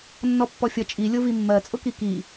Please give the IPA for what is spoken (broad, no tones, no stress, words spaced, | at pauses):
nːɔpːɔfʲʌ t͡ʃʼi lʲʊvimːɜ t͡sʼʊkiki